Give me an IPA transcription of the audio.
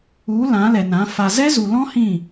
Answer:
u˨˦ l ã˨˦ l ɛ˨ n ã˨˦ f a˨ z ɛ˦ z u˨ l ɔ̃˦ h ĩ˦˨

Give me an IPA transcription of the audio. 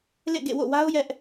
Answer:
l ḛ˦˨ ɡ ḛ˦˨ w o̰˦˨ w a˦ ʊ̯ j ɛ˦ ʔ

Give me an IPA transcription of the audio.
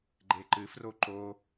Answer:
ɡ͡ǃ e ǃ ɨ f r o ǃ o

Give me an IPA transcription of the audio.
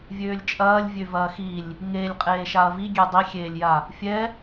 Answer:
vʲ øː lʲ t͡ʃʼ ɐː lʲ vʲ ø v ɐː x i lʲ | ŋ e lʲ qʼ eː ʃ a ɐ̯ v i ɡʲ e dˤ i xʲ eː lʲ j a | fʲ ɛ

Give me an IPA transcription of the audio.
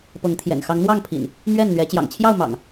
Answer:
p ɤ˨˦ ŋ t̪ʰ j ɛ̰˨˩ n x ɑ˨˦ ŋ n̪ w ɑ˥˨ ŋ pʰ ḭ˨˩ n | m ɥ ɛ˥˨ n n̪ ɥ ɛ˨˦ t͡ɕ j ɑ̰˨˩ ŋ t͡ɕʰ j ɑ˥˨ ʊ̯ m ɑ̰˨˩ ŋ

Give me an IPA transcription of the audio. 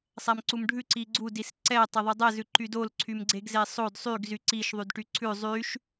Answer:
sˤ æ m ǀ u m ɖʱ ʉ ǀ i ɡ͡ǀ u d i s ǀ ɛ tˤ e ðˤ y dˤ ɛ z ʉ ǃ y d o l ǀʰ y m ɡ͡ǀ e ɡ z e sˤ o d sˤ y ɡ z y ǀ i ʃ ðˤ y d ʈ y ǀʰ ʉ zˤ y ʃ

